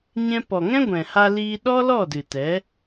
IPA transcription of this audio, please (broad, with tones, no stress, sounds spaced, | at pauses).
ɲ ɛ̃˧ p ɔ˨ ŋ ɛ̃˦ ɡʷ ɛ̃˨ h a˧ l iː˧ ɗ ɔ˦ l ɔ˦˨ d ɨ˨ t ɛ˨˦